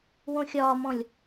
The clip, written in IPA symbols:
w õ xʲ ɒː m ɔ̃ lʲ

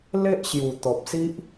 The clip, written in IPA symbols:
l e˦ ʔ ɕ j u˨˩ t̪ ɔ˨ p̚ s i˦ ʔ

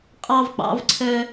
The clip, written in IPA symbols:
qʼ ɑ˦ v k͡p ɑ̰˨˦ v ǀʰ œ˦

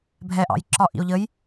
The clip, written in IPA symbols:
bʱ ɛ ʔ ɑ̰ j ǁ ɒ ʔ ḭ o̯ ʎ ə j

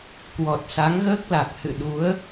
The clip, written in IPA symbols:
k w ɔ˨˩ t̚ s a˨˦ ŋ ɣ əː˦˥ k̚ l a˨˩ k̚ h ɨ̰˧˨ ɗ u˨˦ ə̯

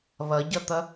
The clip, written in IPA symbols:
β ʌ ɟ ʌ t̪ ʌ

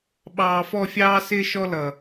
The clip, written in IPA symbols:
ɓ ɑː˨ f ɔ˦˨ fʲ ɑː˦ s ɪː˦ ʃ ɔ˦ l ʌ˨

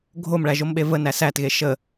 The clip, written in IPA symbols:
ɡʱ o m ɭ æ ʒ o m ɓ e v ə n æ s æ t ɣ e ʃ ə

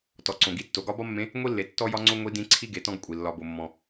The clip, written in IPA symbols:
t ɔ˩ ǀ õ˩ ɡ i˥ tː o˩˧ ɡ ɒ˧˥ b ɒ˥ mː ẽ˧˥ | ŋʷ i˥ lː e˩˧ tː ɔ˥ j ɒ˥ ŋ͡ǀ o˥ ŋʷ i˧˥ d ĩ˧˥ ǀʰ i˥ ɡ e˩˧ t ɔ̃˥ ɡ kʷʼ i˩ lː ɒ˧ b o˧ mː ɔ̃˧

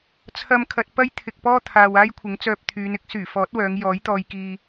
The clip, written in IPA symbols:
t͡sʰ ɐ˧ m kʰ ɐ˨ t̚ p ɐ˥ j t̪ʰ ɪ˨ k̚ p ɔː˥ t̪ʰ aː˨ w aː˥ j kʷʰ ɪ˨˥ ŋ t͡s œː˧ p̚ t̪ʰ yː˨˧ n ɪ˥ k̚ s yː˨˩ f ɔː˨˥ t̚ w œː˨˧ ŋ j ɔː˨˥ j t̪ ɔː˧ j k iː˧

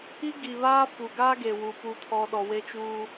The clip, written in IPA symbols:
i˦ ɡ i˨ β aː˦ f u˨ ɡ aː˦ ɡ e˨ w u˨ p u˨ tʰ ɔ˨ ɗ ɔ˨ w e˦ t͡ʃ uː˦

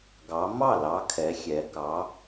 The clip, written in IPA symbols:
ɡ ɑ˨˦ m ɑ˥˩ l ɑ˨˦ kʰ ɛ˨˦ xʲ ɛ˨˦ k ɑ˨˦

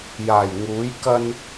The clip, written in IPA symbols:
j aː˨˩ j ŋ uː˨˥ j k ɐ˧ n

